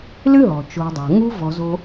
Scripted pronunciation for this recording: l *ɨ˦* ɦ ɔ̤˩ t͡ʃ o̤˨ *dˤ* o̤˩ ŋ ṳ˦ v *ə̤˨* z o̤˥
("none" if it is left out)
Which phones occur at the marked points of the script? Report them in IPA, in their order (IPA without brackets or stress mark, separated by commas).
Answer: ɨ˥, dˤ, ɔ̤˨